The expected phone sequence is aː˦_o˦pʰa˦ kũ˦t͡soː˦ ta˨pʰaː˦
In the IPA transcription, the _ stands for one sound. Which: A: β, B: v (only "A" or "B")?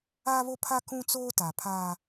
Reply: A